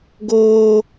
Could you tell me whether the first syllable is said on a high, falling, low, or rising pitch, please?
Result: high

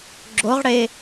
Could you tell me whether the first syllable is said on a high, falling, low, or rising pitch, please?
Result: rising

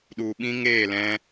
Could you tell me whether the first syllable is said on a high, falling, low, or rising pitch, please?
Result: low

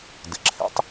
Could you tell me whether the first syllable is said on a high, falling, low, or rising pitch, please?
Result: low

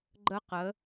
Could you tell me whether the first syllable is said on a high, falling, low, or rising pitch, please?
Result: high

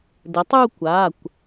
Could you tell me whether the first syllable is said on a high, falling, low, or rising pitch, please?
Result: rising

